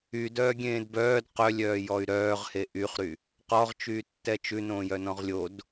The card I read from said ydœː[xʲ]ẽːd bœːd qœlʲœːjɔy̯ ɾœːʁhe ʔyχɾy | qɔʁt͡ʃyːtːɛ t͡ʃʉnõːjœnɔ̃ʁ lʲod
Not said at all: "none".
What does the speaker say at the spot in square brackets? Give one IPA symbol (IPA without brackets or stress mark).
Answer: ɡʲ